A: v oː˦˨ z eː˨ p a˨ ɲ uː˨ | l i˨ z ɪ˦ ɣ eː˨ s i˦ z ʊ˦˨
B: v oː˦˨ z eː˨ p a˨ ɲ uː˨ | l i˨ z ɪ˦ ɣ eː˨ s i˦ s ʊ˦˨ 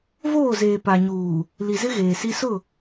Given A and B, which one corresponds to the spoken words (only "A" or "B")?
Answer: B